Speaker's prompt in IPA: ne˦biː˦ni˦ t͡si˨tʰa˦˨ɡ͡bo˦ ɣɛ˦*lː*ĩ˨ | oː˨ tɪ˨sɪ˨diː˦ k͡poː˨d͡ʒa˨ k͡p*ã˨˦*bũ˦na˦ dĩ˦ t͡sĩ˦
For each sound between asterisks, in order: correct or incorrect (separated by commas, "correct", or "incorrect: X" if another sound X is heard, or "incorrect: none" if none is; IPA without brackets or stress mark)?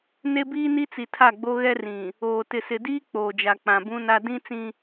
incorrect: r, incorrect: ã˨